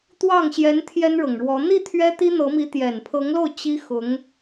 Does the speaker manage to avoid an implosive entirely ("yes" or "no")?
yes